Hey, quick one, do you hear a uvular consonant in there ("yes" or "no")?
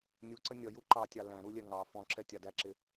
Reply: no